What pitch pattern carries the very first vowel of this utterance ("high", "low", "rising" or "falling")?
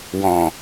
low